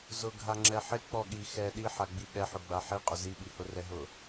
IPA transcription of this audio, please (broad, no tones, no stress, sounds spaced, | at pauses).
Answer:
z ʊ ɡʱ a ŋ͡ǁ ɛ ħ ɪ k͡p ɔ ɠ i x ɛ ɗ i ħ a ɡ͡b i ɠ ɛ ħ ʊ ɡ͡b a ħ i qʼ ʊ z i ɓ i h ʊ r ɛ ɦ ʊ